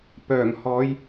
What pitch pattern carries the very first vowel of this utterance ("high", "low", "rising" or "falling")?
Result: low